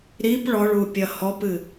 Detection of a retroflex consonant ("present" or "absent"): present